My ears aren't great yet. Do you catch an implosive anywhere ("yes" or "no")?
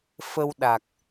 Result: yes